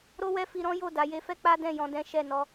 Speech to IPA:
ɾ o˦ w ɛ˦ f i˧ ɾ ɔ̃˦ j o˦˨ d a˨˦ j e˧ f ɛ˦ k͡p a˦ d ɛ̃˦˨ j ɔ̃˧ d ɛ̃˦ ʃ ɛ˦˨ n ɔ˧

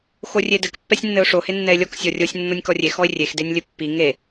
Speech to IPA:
x o rʲ e d ɘ k pː ɛ sʲ nː ɘ ʊ̯ ʂ o h e nː ɛ ɪ̯ lʲ ɔ k sʲ ɔ rʲ o sʲ nː o nʲ k ɔ rʲ e x ɔ ɪ̯ rʲ e x d e nʲ lʲ ɘ pː i ŋ e

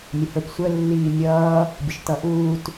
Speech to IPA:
mʲ ə h ə˞ p sʷ ə lː iː mʲ ʌː | bʲ ə ʃ t ʌ ʔ uː t

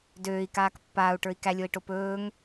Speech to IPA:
d øː i̯ k aː k pː aː u̯ ʈ ə˞ i̯ k æ lʲ o i̯ ʈ o p ɵː ŋ

